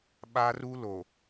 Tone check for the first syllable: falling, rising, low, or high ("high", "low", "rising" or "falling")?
high